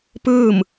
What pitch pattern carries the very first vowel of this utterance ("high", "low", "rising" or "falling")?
falling